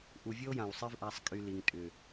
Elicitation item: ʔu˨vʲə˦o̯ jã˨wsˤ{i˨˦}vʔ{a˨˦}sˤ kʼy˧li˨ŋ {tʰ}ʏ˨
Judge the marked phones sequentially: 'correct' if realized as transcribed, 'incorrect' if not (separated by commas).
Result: incorrect, correct, incorrect